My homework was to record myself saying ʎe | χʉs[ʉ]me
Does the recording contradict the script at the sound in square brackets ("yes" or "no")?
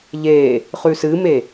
yes